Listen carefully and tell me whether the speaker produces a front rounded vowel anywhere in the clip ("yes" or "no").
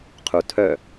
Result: yes